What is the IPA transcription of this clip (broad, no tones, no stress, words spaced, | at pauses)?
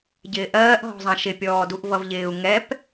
ɟɪːʔɜːʔɦɔ̤zˤɑ̃ ʃɪpʲɔː duʔvʌvʎɪːu̯ ŋɛp